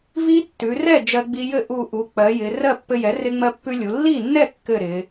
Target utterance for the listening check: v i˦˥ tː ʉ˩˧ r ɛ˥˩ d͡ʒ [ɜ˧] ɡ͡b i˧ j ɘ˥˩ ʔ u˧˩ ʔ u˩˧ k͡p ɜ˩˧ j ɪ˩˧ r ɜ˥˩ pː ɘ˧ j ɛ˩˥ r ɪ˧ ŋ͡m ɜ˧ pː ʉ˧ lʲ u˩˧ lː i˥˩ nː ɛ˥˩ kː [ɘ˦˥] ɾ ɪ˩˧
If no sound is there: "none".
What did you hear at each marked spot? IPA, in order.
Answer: ɜ˧, ɘ˥˩

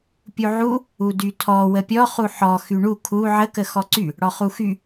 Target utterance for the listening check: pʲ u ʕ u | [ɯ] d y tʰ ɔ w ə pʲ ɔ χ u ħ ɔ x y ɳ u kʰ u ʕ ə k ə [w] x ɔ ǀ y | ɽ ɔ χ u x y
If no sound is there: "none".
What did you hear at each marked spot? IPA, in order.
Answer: u, none

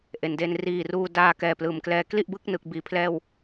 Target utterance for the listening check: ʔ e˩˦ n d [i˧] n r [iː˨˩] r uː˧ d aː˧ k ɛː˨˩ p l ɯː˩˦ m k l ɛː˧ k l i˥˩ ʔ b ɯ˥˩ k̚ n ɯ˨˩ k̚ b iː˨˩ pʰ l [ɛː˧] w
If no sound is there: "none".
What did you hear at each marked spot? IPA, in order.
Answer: e˧, iː˨˩, ɛː˥˩

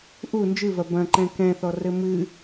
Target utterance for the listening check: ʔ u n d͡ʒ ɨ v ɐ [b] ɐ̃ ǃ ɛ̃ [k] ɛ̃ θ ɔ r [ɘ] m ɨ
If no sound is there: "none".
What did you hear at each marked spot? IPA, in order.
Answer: b, k, ɘ

